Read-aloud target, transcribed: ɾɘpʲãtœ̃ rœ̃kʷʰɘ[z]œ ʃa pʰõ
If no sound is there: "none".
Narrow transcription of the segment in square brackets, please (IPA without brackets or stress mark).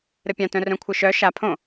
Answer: ʃ